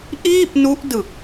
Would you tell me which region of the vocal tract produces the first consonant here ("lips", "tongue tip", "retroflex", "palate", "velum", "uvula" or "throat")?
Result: throat